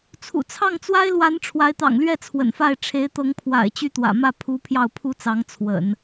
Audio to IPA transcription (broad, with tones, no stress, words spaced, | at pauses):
t͡sʰṵ˨˩t͡sʰɑ˥˩ŋt͡swa˥ɪ̯lwa˧˥n ʈ͡ʂʰwa˧˥ɪ̯t̪ɑ̰˨˩ŋlɥɛ˥˩ t͡sʰwə̰˨˩nfa˥˩ɪ̯ ʈ͡ʂʰe˧˥ɪ̯t̪ɤ˧˥ŋpʰwa̰˨˩ɪ̯ t͡ɕy˥˩t̪wä̰˨˩mä˥˩ pʰu˧˥ pʰjɑ˥˩ʊ̯pʰu˥t͡sɑ˧˥ŋ t͡sʰwə̰˨˩˦n